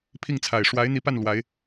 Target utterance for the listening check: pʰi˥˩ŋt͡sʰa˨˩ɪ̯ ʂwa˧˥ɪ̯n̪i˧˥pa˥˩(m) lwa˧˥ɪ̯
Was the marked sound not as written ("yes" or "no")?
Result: yes